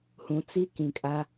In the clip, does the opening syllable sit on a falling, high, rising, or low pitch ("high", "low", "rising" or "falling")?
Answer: low